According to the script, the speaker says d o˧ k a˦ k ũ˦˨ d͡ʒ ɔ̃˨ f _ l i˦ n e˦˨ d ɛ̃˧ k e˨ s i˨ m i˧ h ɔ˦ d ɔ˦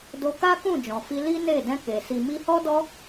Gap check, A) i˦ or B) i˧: B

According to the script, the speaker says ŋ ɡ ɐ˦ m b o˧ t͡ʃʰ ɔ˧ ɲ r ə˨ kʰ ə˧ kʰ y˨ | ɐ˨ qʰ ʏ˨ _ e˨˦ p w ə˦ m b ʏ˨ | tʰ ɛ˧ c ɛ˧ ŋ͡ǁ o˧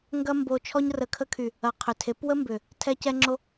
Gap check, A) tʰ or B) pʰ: A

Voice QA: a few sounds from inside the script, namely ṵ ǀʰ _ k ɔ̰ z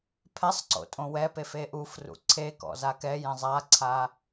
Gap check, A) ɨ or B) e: B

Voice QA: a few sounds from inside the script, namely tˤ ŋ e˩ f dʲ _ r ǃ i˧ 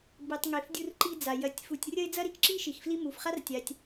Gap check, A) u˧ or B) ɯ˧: A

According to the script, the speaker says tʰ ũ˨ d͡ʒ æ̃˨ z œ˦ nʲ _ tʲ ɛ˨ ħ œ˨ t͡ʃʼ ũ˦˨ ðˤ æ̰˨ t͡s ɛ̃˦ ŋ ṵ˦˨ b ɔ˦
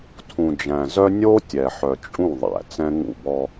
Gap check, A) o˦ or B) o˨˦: A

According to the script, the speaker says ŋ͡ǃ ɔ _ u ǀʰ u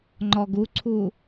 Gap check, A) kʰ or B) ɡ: B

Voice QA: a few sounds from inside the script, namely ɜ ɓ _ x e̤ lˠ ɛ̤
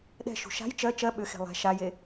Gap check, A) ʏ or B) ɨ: A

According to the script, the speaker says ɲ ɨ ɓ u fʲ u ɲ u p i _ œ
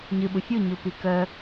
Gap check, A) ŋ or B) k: B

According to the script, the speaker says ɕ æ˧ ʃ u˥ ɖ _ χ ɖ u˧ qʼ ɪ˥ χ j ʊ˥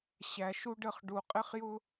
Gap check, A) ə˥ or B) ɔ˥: A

